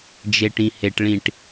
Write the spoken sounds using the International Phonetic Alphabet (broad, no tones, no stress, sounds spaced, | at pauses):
d͡ʒ e ʈ ĩ h e ʈ ɭ ĩ ʈ